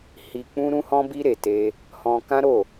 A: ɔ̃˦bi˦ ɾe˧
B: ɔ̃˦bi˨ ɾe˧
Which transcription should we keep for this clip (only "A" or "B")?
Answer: A